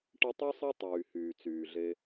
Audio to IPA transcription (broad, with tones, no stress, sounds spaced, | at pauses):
ʈ ə˦ tˤ y˥ sˤ e˥ tˤ yː˨ h yː˩ t͡s yː˨ ɮ e˦